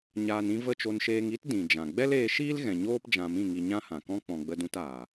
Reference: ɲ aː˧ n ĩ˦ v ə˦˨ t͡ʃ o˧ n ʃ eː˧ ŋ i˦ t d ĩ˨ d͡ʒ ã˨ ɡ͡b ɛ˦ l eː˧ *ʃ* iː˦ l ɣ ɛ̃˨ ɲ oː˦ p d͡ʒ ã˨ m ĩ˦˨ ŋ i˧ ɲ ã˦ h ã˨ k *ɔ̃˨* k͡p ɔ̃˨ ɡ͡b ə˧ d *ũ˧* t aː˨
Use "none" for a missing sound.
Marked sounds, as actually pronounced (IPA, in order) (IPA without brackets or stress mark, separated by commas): ʃ, ɔ̃˦, ũ˧